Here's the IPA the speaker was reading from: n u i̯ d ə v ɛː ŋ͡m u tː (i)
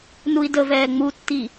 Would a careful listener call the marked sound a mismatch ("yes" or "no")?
no